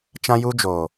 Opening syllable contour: high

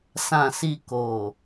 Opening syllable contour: low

